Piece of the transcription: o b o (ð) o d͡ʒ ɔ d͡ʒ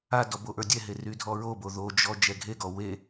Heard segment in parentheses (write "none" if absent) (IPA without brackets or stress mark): ð